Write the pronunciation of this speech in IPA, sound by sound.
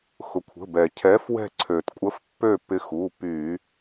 xʊ˩kʷʰə̤˩˧˩bɛ˩ cʰɛ˨˥fwɛ̤˦˨ ǀʰø˩tkʷʼə˨˥f pːø˦˨pːɪ˨˥xu˩˧˩ py˧˩˧

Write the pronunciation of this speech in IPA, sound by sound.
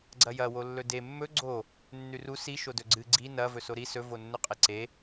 ɡ͡ǀɐjɐ wolːɵde mːɵ ɡ͡ǀo | nːʉru si ʃodɵɡ͡ǀɨ ɡ͡ǀi nɐ vɵsoɾi sɵ vonːɵqʼeǀe

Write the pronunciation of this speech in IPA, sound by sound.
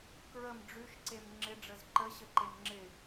kɹəm ɖ͡ʐʉʃǀem ŋ͡ǁɪɖ͡ʐəz ǃəɕəǃem ŋ͡ǁɪ

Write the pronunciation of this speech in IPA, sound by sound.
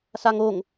saŋoŋ

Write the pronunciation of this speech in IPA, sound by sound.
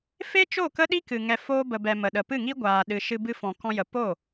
fe˦t͡ʃo˦˨ kə˦ɗi˦kɨ˨ ŋɛ˨foː˧bə˨bɛ˨ mə˨ɗə˨ pɨ˦˨ŋi˦ɡʷaː˨ɗɨ˨ ʃɨ˧ bɨ˧fɔ̃˨kɔ̃˧jə˨ po˦˨

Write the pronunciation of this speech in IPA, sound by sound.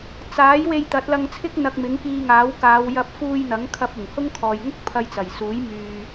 t͡saː˨˥j we˧jt̪ɐ˨˥t̚lɐ˧ŋt͡sʰɪ˥k̚ n̪ɐ˧k̚mɪ˨˥ŋkiː˧ŋaː˨˥w kaː˨˧wjɐ˧p̚ fuː˧jn̪ɐ˨˥ŋkʰɐ˧p̚ ʊ˨˩ŋhʊ˥ŋ kʰɔː˨jŋʊ˥k̚ pʰɐ˧jt͡sɐ˨˩j suː˨˥jmyː˨

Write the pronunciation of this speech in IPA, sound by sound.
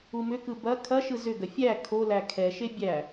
umʏkɯ bɐ kʰɐʃɯ zʏɡɐ fʲæ kʰolæ kʰɛʃe bʲæ

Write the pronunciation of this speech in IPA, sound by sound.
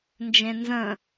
nd͡ʒẽnzə̃

